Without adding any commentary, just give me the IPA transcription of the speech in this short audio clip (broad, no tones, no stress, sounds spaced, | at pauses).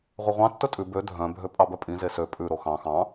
ʁʷ œ ʁʷ ɑ̃ tː ɵ tʼ ʉ b ø dʱ œ̃ bʱ ø pʼ ɑ b œ pʼ ĩ z e s ø pʼ ʉ ɾ o x ɑ̃ x ɑ̃